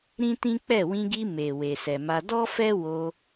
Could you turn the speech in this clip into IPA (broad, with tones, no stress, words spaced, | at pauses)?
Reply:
ɾĩ˦tĩ˦k͡pɛ˦˨ wĩ˧ɡi˧ me˨ we˨sɛ˨ma˧ dɔ˦fɛ˦ wo˧